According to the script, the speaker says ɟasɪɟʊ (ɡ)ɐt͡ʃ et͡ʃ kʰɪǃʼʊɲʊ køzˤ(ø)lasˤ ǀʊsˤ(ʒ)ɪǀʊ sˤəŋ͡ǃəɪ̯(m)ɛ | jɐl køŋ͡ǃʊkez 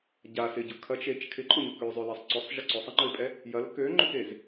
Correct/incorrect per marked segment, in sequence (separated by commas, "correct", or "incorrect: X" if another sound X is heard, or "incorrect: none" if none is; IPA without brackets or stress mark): incorrect: kʰ, correct, correct, incorrect: pʼ